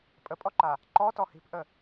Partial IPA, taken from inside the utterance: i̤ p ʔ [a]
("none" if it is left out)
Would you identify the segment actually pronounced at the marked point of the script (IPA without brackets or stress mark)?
ə